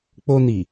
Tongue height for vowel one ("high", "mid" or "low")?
mid